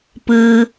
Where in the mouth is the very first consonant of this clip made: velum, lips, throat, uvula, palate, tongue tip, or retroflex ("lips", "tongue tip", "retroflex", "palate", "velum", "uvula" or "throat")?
lips